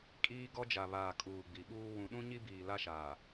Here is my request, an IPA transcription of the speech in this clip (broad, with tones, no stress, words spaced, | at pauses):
kʼiː˦ɡɔ˦d͡ʒa˨βaː˨ kʼuː˨ɡ͡bi˨ɓuː˦ wũ˨ɗũ˦ ɲi˦biː˨ la˦ʃaː˨